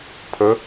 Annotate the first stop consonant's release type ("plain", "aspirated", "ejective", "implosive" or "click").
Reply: aspirated